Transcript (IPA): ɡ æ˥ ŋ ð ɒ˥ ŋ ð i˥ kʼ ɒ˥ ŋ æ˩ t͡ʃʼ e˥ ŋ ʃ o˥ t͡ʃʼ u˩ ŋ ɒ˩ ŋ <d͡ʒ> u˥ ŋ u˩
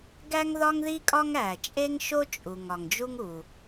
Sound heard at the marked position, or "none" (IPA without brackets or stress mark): d͡ʒ